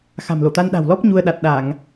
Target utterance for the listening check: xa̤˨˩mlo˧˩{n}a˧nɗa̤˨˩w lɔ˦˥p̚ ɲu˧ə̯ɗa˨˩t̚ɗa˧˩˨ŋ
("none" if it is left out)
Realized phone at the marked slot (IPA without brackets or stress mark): t̪